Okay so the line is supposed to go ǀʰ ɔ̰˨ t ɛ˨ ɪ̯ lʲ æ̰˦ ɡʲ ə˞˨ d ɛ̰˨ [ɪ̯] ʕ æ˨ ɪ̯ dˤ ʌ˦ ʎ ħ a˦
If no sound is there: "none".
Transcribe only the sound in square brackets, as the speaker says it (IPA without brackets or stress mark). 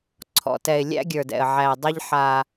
ə̯